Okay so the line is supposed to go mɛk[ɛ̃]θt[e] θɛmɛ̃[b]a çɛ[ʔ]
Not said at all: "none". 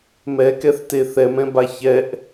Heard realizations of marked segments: ɛ, e, b, ʔ

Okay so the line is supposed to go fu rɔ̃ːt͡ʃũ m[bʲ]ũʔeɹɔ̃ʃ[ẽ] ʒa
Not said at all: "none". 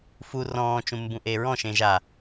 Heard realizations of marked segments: b, ẽ

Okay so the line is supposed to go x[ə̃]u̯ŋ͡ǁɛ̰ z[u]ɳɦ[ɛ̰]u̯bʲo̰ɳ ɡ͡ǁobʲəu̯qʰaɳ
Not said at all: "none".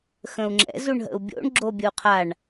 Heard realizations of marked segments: ə̃, u, ə̰

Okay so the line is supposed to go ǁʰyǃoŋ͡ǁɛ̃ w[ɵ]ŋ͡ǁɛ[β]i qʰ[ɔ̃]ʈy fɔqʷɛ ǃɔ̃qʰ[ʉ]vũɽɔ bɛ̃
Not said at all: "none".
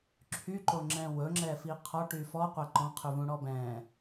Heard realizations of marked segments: ɵ, f, ɔ, ʉ

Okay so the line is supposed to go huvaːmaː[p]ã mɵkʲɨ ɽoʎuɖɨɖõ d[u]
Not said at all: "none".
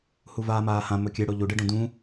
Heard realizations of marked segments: h, ũ

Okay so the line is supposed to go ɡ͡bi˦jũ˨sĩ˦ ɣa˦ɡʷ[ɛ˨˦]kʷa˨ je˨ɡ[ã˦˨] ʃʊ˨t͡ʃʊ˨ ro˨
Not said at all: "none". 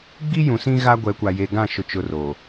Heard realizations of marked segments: ɛ˨˦, ã˦˨

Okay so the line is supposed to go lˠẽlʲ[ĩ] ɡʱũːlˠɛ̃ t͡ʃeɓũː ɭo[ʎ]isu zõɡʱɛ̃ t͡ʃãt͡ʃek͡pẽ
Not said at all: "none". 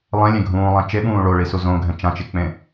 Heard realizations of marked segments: ẽ, ɭ

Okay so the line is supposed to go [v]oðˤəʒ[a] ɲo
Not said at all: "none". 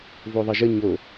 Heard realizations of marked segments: v, ə

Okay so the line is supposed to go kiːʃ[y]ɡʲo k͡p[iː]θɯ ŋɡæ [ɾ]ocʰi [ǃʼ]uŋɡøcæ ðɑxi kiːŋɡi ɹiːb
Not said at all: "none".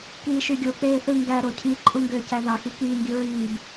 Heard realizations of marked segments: y, eː, ɾ, ǃʼ

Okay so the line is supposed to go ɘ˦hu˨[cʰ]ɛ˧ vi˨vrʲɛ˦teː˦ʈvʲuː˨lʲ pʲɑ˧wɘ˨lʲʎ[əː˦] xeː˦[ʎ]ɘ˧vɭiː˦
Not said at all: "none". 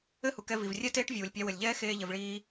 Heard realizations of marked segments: k, ɛː˦, ʎ

